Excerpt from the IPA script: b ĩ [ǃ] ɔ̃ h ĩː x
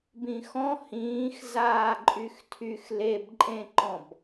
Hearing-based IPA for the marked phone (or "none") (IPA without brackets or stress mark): x